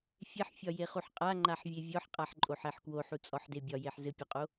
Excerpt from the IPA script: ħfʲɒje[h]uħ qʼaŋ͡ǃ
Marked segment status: incorrect: χ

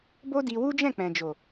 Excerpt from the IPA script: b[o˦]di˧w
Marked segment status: correct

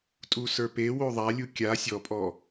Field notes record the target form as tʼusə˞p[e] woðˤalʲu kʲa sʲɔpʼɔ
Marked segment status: correct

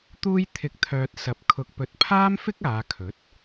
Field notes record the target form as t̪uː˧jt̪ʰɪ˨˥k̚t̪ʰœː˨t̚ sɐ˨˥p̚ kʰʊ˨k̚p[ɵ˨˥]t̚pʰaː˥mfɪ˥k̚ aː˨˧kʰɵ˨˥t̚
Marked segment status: correct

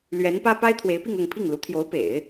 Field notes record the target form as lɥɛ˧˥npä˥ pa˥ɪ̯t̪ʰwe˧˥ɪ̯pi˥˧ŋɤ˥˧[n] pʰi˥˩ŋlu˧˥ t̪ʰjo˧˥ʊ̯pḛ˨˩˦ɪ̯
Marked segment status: incorrect: ŋ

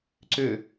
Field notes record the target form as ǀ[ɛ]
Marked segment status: incorrect: ʏ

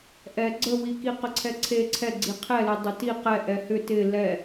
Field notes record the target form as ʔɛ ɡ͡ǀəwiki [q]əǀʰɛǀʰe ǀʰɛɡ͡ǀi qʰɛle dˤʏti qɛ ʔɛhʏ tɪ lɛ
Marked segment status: correct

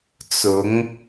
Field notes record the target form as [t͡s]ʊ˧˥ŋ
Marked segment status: correct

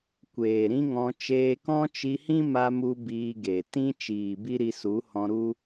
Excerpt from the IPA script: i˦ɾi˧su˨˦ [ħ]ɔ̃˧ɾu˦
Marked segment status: incorrect: h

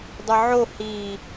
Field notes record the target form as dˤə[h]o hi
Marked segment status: incorrect: ʕ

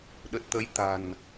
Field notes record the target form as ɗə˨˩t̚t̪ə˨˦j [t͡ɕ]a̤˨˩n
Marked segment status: incorrect: t̪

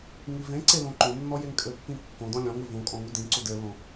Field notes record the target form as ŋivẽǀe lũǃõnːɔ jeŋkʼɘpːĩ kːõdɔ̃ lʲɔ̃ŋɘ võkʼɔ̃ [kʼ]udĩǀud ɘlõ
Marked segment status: incorrect: ŋ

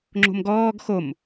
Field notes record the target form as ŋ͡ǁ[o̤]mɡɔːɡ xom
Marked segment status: correct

